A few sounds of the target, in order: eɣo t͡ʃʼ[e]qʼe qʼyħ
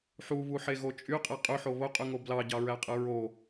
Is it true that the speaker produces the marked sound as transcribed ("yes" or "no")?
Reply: no